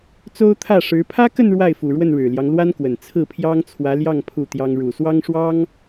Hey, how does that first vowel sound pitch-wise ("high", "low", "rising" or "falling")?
high